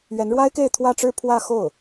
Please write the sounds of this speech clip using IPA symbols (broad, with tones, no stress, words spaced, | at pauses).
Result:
ɥɛ˧˥nɻwa˥ɪ̯ke˥˧ɪ̯ t̪ʰwä˥˧ʈ͡ʂɻ̩˥˧pʰwä˥˧ xo˥˩ʊ̯